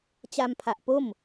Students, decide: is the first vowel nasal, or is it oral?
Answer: oral